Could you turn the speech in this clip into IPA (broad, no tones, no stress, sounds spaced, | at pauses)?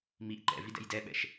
m i ʔ ǃ ɛ̰ v i d ɛ̰ j d ɛ ɓ ɛ̰ ʃ